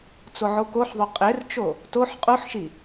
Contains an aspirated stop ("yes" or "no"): no